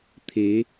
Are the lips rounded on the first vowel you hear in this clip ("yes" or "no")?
no